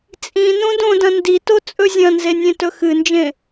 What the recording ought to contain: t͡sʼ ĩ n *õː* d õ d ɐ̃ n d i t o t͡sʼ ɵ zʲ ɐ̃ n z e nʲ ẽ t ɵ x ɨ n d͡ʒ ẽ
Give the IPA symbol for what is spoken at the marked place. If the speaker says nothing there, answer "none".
õ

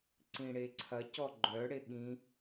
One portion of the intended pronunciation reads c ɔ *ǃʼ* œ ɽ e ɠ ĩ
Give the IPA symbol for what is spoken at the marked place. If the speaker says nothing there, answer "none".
ɡ͡ǃ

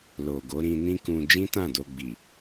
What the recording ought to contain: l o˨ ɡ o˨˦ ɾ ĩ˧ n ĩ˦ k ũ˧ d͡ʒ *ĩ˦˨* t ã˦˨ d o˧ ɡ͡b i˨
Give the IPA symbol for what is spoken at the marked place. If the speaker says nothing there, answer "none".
ĩ˦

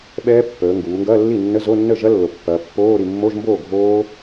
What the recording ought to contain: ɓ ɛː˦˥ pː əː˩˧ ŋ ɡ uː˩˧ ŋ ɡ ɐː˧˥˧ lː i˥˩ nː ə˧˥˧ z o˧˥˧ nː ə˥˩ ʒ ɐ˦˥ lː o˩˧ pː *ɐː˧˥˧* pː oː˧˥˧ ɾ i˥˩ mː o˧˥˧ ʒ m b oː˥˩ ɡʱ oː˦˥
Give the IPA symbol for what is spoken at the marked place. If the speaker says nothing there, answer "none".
ɐː˩˧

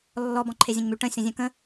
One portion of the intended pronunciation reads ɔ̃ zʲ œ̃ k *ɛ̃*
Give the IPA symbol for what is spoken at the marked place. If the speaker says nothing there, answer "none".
ə̃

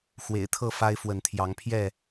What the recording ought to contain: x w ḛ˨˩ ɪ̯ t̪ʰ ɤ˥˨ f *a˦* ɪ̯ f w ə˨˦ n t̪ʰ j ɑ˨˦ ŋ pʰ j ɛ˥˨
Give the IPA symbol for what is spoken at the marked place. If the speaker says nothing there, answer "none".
a˦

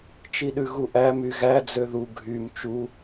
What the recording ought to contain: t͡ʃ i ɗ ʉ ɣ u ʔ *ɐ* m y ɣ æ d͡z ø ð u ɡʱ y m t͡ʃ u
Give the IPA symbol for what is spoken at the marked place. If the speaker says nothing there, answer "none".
æ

